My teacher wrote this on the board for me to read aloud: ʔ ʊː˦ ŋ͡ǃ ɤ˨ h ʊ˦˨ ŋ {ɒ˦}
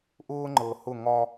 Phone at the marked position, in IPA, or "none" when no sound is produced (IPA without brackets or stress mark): ɒ˦